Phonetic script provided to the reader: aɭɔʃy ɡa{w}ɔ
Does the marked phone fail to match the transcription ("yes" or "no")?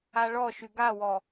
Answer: no